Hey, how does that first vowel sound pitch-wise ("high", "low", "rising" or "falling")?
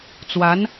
rising